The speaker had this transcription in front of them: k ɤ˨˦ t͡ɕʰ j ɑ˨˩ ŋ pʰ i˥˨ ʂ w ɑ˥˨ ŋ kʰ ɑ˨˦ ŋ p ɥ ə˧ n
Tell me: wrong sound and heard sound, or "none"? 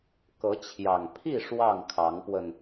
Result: ɥ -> w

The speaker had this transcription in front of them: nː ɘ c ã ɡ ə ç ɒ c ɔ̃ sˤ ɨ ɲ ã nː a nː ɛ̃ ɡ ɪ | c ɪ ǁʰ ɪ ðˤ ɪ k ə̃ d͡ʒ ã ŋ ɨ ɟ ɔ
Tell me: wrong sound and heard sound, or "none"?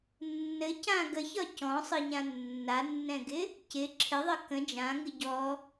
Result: none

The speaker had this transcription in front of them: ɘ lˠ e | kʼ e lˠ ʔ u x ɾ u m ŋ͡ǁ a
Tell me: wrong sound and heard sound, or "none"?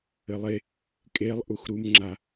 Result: none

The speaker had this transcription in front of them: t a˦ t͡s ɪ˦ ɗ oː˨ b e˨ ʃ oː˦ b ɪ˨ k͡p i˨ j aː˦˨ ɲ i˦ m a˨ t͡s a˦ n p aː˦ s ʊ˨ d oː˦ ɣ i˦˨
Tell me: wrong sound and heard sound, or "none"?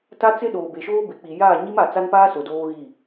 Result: none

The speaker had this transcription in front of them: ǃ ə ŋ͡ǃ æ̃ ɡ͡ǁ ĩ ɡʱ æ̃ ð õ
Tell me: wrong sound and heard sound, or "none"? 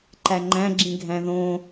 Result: ə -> æ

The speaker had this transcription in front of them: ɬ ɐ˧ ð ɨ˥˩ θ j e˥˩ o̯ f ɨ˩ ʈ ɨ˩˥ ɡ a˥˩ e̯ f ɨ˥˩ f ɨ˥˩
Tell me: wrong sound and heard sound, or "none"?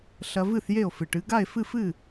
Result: ð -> v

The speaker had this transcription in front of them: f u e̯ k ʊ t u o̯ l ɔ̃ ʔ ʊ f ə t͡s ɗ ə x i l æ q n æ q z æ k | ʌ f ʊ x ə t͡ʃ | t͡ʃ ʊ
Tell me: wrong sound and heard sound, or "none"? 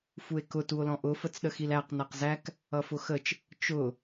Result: none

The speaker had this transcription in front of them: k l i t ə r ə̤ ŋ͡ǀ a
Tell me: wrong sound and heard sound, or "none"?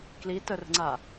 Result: none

